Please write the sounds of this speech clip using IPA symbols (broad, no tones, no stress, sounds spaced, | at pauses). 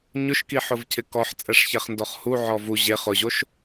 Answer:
ɲ ʊ ʃ k i ħ ʊ v cʰ ɪ k ɔ ħ t͡sʼ ɛ ʂ ç ɛ χ n d ɔ χ h u ʕ ɔ v u ʑ e χ ʊ ʑ o ʃ